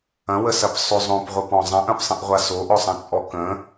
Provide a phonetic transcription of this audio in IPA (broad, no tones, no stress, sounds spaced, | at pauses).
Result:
ɐ̃ w ə s ɐ p sˤ ʏ zˤ õ p ʁʷ ə p ɔ̃ zˤ ɐ̃ ʔ ɐ̃ p sˤ ə̃ ʔ ʁʷ a s o ʔ ɔ sˤ ɐ̃ t͡sʼ ɔ k ə̃